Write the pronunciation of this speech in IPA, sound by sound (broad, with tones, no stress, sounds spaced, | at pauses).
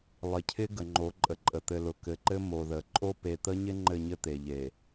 lˠ ɪ˨ cʰ ɪ˦ ɡ ə˨ ŋ͡ǃ o˨˦ ǃʼ ə˨ ǃʼ ə˨ t̪ ɘ˨ l ʊ˨ k ɘ˨ ǃ ɘ˦ m o˨ ð ə˨ ǃʼ o˦ p e˨ t̪ ə˦ ɲ ɪ˦ ŋ͡ǃ ɘ˦˨ ɲ ɘ˦ t̪ e˨ ʎ e˨